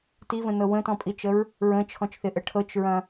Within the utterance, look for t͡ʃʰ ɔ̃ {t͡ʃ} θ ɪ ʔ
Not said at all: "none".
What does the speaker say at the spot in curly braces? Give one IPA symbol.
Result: t͡ʃ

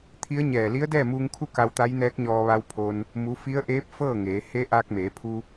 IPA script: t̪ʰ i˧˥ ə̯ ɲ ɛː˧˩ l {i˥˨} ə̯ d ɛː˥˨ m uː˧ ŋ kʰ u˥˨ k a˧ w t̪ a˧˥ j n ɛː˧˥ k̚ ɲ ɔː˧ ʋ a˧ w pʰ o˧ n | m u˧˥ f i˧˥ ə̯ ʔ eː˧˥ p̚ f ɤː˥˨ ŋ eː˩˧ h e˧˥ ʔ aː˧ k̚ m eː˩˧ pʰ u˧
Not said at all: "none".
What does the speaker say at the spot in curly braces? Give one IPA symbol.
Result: i˧˥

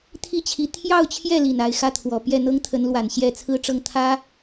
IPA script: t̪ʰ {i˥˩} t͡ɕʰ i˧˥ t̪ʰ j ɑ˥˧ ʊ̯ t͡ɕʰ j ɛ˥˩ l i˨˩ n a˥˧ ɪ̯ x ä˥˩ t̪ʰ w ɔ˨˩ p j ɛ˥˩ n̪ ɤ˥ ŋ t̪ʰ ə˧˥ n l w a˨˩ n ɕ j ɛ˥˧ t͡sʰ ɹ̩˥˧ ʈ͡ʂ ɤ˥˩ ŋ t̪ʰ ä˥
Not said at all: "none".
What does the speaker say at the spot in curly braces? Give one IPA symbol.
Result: i˥˩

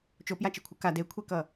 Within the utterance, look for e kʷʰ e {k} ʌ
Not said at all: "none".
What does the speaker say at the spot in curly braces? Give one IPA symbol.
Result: k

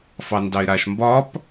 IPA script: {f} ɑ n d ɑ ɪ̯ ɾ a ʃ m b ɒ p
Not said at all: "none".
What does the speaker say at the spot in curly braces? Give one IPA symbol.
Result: f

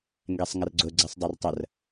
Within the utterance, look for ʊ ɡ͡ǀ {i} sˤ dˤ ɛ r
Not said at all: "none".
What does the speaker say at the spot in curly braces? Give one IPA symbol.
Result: e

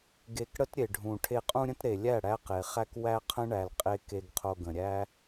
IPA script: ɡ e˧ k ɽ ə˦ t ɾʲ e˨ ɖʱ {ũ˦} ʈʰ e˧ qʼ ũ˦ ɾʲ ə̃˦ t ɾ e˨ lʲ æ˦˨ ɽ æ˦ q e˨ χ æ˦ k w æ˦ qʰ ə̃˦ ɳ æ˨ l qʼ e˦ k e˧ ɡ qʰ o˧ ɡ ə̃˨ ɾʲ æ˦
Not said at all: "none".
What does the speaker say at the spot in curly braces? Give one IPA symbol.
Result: ũ˨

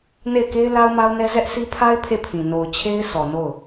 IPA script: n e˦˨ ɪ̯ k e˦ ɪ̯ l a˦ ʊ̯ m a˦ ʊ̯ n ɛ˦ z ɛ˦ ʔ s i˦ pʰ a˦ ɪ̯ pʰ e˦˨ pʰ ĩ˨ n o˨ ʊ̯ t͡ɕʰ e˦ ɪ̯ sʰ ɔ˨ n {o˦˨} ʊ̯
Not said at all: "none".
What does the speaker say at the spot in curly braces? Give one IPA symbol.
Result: o˦˨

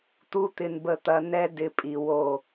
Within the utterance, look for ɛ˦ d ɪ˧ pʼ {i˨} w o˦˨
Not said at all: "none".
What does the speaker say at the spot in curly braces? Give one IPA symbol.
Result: i˨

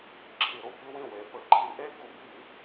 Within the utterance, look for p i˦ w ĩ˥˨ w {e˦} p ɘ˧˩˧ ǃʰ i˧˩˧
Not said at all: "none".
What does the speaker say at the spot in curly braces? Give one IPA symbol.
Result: e˩˧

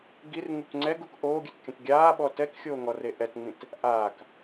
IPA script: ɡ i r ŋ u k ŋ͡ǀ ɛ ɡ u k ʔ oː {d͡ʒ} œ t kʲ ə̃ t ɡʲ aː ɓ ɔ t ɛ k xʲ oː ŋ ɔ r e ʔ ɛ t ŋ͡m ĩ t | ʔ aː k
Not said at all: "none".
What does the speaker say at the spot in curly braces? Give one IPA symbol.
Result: ɡʲ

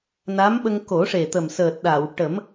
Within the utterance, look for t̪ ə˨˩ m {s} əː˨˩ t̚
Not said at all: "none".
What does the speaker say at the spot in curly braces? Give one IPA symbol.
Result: s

